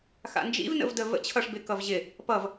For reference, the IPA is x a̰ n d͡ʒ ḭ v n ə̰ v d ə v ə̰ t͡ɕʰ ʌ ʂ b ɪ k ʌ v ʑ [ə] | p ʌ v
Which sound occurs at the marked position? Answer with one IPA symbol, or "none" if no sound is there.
ɪ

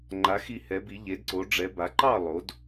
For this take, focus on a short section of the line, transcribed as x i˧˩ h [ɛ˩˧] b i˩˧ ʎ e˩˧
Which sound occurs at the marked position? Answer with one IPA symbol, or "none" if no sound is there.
ɛ˩˧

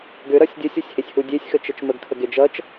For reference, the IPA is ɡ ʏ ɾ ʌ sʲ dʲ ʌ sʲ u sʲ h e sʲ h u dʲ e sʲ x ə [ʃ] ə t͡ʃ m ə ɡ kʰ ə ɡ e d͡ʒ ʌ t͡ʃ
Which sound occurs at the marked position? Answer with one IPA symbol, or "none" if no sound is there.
t͡ʃ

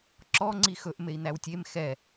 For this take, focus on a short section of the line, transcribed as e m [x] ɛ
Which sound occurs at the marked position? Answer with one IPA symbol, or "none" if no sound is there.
x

